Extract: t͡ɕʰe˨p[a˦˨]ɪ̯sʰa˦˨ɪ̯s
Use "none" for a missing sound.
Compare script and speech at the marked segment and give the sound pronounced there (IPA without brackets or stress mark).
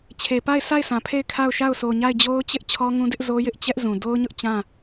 a˦˨